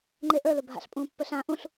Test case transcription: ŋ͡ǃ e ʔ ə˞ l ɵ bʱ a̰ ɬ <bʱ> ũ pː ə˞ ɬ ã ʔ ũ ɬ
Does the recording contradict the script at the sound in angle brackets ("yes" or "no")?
yes